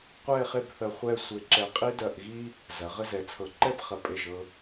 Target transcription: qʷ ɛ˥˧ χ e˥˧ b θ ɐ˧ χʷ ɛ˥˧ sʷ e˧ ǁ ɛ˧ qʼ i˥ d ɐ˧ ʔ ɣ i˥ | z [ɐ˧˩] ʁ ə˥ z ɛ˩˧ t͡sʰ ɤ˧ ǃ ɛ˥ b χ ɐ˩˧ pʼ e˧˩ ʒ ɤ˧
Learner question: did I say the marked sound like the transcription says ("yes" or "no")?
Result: no